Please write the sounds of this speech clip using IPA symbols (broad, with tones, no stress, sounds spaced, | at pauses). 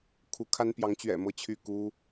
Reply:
kʰ u˧˥ kʰ a˥ n p j ɑ˧˥ ŋ t͡ɕ ɥ ɛ̰˨˩ m ɤ˥ t͡ɕʰ y˥˩ k u˥